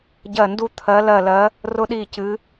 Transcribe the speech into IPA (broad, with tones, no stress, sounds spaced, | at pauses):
ɟ ɜ˥˨ n d u˥ t̪ʰ ɜ˧˥ l ɜ˥˨ l ɜ˧˥ | r ʊ˥ ɗ i˥˨ c ɨ˧˥